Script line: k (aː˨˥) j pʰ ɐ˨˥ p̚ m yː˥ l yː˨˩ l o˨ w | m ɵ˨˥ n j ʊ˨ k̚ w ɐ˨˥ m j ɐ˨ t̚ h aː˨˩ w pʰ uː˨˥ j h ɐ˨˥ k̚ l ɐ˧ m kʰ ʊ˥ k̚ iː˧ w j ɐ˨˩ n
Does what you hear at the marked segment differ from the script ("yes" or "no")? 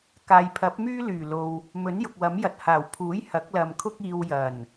yes